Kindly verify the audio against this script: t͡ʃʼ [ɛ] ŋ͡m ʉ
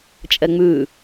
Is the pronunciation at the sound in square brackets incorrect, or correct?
correct